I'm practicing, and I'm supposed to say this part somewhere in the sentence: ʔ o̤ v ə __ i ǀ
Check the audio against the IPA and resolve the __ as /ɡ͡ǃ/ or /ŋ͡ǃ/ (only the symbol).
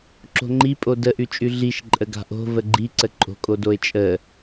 ɡ͡ǃ